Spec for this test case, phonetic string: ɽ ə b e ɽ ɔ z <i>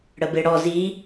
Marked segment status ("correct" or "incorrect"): correct